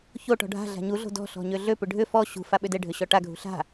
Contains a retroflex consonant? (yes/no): yes